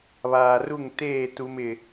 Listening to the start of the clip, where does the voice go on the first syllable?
low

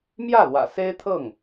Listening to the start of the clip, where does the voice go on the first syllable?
falling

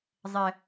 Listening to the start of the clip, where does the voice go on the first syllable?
high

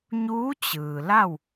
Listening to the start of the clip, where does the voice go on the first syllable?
rising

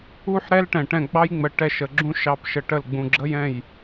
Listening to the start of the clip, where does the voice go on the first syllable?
falling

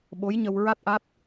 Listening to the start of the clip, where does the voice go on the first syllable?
rising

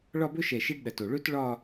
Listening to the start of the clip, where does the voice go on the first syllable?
falling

